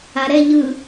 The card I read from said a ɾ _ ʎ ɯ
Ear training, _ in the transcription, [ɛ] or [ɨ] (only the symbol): ɛ